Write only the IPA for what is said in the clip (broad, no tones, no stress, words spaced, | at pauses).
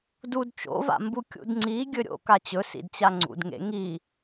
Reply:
dud t͡ʃo̰va̰mbu kʲṵdŋ͡ǀi ɡʲɵɾʲo̰ kat͡ɕɵ sḭdt͡ɕaŋ͡ǀṵdŋḛ ŋi